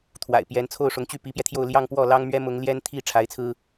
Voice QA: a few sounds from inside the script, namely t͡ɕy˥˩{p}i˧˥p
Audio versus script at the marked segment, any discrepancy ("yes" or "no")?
no